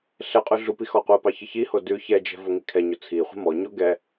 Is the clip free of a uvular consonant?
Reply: no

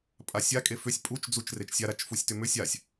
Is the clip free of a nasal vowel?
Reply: yes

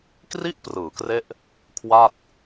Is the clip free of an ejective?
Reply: yes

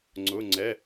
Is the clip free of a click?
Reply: no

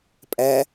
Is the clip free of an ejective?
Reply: no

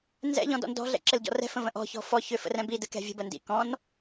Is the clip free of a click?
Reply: no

